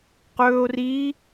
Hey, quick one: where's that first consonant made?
uvula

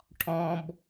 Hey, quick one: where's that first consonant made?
retroflex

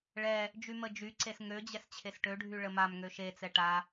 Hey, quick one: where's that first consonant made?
retroflex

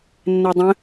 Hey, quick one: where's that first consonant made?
tongue tip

